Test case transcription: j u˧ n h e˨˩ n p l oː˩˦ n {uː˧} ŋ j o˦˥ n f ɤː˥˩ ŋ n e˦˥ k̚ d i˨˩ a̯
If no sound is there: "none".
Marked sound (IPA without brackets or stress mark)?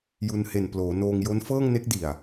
oː˧